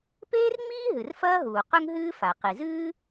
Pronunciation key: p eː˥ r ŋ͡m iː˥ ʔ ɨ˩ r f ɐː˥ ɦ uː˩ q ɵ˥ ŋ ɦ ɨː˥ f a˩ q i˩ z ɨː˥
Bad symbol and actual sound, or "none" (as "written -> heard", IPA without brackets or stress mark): ʔ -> ɦ